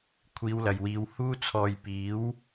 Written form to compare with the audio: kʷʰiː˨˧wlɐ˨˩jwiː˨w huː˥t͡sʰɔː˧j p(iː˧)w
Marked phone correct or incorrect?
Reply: incorrect